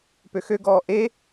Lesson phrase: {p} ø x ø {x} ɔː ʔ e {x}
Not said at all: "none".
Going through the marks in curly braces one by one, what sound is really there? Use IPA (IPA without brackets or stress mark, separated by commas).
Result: p, ɡ, none